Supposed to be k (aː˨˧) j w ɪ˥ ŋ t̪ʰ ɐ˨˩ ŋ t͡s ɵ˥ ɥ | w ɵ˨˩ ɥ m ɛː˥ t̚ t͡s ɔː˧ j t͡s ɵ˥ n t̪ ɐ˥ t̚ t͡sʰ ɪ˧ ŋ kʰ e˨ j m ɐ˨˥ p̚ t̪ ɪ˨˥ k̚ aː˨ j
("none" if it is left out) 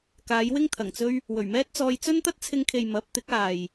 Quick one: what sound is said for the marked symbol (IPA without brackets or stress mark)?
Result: aː˨˧